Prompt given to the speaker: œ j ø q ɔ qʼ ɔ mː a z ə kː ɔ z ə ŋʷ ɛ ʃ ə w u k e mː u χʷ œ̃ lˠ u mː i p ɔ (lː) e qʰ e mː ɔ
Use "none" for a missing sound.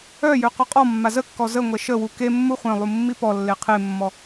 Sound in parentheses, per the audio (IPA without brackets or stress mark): lː